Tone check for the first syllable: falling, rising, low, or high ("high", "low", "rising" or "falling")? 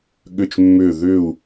falling